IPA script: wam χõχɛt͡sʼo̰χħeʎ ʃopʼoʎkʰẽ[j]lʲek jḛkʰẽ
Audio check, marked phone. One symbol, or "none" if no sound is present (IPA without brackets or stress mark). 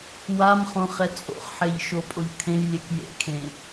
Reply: j